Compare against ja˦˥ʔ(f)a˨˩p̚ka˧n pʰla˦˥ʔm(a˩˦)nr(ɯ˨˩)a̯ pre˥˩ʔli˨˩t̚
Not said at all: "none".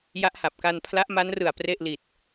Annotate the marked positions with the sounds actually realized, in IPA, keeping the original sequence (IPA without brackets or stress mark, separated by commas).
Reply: h, a˦˥, ɯ˨˩